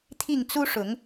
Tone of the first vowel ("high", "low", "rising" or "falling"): falling